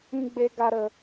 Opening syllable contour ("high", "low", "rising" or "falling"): high